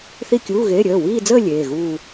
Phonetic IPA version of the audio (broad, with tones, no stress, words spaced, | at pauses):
θi˥˧kʲuː˧˥˧ɣeː˧˥˧ ɾʲəː˩˧˩wiː˥˧d͡zəː˥˧ lʲeː˩˧˩ɣuː˥˧